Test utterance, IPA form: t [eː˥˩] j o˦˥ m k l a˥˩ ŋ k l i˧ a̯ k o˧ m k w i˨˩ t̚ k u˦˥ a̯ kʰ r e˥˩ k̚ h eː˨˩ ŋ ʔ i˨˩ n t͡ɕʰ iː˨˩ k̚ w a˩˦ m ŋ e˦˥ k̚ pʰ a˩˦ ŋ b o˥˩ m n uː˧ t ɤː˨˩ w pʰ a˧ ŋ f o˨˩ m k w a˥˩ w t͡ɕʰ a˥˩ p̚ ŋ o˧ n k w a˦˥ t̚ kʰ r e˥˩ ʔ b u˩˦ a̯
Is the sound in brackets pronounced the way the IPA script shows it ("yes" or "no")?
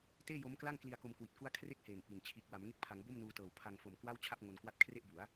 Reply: yes